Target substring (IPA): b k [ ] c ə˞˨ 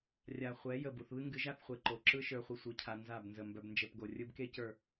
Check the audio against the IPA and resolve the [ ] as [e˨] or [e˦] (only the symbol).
e˦